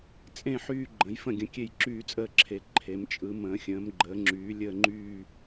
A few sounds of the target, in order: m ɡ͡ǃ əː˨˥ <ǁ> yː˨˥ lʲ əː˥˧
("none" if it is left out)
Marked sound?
ŋ͡ǁ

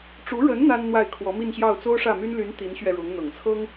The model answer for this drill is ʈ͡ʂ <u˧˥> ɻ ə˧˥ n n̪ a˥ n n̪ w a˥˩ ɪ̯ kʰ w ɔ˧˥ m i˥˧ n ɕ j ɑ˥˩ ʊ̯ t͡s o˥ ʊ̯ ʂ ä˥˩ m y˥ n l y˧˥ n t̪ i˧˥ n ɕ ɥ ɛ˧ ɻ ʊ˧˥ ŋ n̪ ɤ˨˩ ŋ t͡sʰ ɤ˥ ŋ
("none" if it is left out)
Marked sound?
u˧˥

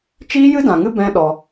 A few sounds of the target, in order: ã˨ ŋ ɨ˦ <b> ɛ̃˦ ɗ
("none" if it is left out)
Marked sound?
b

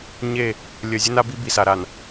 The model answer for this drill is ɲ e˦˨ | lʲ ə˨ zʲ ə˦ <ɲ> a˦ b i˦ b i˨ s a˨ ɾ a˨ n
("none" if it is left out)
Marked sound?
n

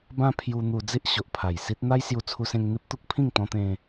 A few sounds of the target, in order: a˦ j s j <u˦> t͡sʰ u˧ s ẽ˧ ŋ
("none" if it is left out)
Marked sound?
u˧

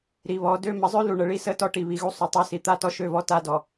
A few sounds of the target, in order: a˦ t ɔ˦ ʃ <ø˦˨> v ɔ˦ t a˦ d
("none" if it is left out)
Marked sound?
ø˦˨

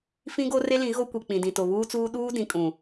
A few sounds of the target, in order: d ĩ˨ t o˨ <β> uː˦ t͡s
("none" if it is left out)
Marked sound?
β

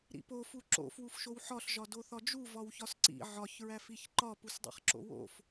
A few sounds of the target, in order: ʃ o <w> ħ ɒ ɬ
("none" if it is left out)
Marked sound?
w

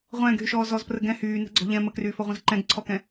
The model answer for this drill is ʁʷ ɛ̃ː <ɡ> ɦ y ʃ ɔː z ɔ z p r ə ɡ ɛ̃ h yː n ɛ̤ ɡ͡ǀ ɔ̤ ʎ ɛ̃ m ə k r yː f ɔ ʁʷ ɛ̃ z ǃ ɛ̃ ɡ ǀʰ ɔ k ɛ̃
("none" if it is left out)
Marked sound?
ɡ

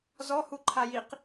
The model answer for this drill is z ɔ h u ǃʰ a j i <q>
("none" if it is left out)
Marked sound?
q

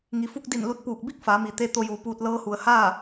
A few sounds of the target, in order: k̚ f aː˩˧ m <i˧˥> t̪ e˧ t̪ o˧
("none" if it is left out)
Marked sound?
i˩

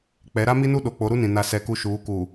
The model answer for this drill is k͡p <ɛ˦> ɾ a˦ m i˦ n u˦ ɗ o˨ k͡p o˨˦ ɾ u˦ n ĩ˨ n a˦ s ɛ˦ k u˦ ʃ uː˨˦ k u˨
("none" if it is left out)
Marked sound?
ɛ˨˦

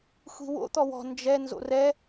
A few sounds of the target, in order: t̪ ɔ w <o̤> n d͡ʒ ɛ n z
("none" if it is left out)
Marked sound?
ɔ̤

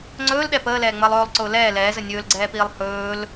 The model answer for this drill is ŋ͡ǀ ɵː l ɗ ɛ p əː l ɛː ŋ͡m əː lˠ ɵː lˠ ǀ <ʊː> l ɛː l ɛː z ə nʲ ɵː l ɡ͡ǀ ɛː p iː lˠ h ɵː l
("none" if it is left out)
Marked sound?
ʊː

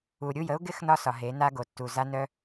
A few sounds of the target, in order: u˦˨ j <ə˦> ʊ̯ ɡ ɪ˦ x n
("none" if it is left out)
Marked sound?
ə˦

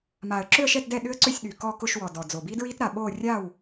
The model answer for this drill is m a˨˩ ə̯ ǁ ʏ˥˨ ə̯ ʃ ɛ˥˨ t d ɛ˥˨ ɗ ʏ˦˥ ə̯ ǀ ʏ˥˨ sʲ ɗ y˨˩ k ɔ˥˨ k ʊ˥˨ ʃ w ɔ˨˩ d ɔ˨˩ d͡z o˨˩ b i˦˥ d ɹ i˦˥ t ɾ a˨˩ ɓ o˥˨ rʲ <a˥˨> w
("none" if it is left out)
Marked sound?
a˥˨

